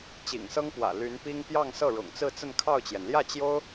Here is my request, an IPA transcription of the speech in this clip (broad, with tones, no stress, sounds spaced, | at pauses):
t͡ɕ ḭ˨˩ ŋ s ɤ˥ ŋ p w ä̰˨˩ l y˧˥ n p i˥ ŋ p j ɑ˥˧ ŋ s ɤ˥˩ ɻ ʊ̰˨˩ ŋ t͡s ɹ̩˥˧ t͡s ə˥˧ n kʰ ɑ˥˩ ʊ̯ t͡ɕ j ɛ˩ n l j ä˥˩ t͡ɕ j o˥ ʊ̯